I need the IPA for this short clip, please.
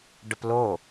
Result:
ɖ ə p l o

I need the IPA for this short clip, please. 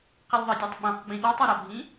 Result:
q i lʲ ðˤ ʌ dʲ æ tˤ ɓ ɛ̃ q ɡ͡b ĩ ɗ ɔ tˤ ʌ ɾ ɒ bʱ ĩ

